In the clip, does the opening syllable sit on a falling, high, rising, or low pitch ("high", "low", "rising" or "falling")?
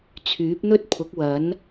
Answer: rising